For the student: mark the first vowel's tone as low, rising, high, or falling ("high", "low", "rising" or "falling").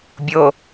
low